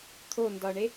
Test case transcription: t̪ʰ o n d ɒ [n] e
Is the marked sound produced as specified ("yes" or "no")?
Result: no